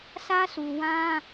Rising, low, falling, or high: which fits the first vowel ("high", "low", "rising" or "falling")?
high